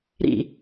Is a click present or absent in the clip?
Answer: absent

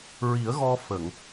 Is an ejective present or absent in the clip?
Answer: absent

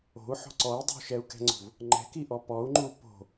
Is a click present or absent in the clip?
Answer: present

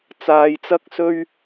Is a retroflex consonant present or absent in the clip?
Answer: absent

